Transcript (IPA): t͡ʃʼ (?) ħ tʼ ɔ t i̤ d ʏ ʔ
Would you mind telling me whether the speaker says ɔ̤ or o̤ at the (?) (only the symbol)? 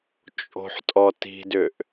o̤